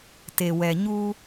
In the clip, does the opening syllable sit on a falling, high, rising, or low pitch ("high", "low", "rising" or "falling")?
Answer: low